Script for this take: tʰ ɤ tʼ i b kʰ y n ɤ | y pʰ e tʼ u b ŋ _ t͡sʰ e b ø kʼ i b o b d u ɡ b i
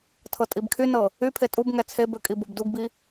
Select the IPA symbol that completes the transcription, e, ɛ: ɛ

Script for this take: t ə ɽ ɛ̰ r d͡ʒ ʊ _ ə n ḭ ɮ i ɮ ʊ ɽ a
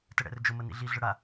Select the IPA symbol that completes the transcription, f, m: m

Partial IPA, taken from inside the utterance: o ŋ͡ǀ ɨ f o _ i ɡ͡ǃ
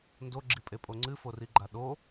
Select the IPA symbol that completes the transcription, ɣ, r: r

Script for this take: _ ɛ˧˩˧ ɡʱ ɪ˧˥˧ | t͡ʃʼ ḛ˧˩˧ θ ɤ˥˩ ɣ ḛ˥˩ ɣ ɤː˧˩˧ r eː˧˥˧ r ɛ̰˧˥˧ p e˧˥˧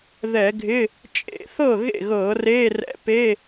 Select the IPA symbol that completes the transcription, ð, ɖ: ð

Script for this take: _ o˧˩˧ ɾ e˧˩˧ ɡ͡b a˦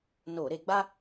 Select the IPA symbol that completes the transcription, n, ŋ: n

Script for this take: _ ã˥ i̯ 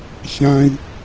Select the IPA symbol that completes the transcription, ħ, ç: ç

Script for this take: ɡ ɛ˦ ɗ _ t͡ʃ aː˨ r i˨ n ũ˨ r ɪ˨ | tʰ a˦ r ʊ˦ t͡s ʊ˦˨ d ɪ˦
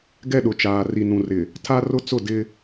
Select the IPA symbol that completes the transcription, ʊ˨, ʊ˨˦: ʊ˨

